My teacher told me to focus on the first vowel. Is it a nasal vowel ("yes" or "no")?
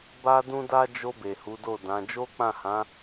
no